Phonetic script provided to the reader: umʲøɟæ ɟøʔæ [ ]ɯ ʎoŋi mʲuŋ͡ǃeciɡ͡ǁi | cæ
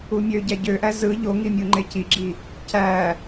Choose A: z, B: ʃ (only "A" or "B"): A